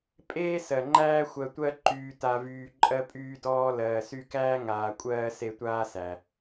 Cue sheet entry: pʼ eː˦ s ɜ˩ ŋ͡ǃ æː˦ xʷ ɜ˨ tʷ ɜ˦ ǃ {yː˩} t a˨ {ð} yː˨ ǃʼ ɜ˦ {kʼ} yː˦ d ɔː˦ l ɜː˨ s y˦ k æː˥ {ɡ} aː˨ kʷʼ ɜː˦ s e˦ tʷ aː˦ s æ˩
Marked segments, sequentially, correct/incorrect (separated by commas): incorrect, incorrect, incorrect, incorrect